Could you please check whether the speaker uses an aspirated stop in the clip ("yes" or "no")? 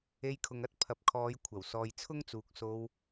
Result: yes